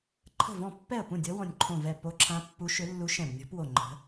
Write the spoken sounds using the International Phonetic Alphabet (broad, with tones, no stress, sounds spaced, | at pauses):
ǃʰ ə̤˧˩ v ɔ̃˧˩ pː ɛ˧˩ ə̯ p ũ˧˩ dʲ ɔ˧˥ w ɔ̃˧˩ nʲ ǃʰ õ˧˩ v ɛ˧˩ p o˧˥ ǁʰ ã˧˥ pː u˧˥ ʃ ʏ˧˥ lː u˧˥ ʃ ɛ̃˧˩ b nʲ ɔ̤˧˥ p w o˧˩ ŋ͡ǃ ə̤˧˥